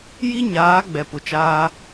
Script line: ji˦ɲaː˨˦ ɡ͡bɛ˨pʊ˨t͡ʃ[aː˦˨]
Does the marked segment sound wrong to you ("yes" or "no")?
yes